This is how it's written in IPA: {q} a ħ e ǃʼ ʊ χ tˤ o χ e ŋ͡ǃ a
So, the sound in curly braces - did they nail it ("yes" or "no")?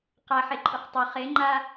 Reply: yes